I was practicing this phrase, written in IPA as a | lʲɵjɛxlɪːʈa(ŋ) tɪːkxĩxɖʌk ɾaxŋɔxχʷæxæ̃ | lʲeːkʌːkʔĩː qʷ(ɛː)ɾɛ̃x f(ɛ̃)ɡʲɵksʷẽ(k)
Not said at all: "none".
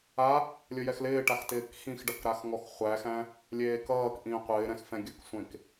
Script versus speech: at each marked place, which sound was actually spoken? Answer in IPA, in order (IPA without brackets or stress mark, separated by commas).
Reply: x, ɪː, ɛ̃, k